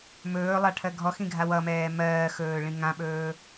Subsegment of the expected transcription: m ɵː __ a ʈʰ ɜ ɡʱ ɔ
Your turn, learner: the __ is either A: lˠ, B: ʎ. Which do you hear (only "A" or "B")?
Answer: A